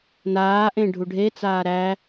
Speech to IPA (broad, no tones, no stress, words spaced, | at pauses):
naːʔẽ ɖʱuɖʱet͡saː ɾæ